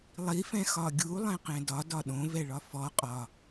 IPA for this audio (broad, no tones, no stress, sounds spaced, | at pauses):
lˠ i f ɛ̃ x ɒ ɡʲ u lˠ ɛ̃ q ɛ̃ d ɒ d ɒ ɗ õ v ɛ ɭ ɒ f ɔ qʼ ɒ